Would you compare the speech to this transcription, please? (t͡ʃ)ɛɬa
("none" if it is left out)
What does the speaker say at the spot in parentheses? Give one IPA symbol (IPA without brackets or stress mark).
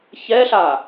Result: ç